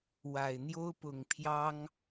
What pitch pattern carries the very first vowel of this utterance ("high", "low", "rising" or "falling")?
low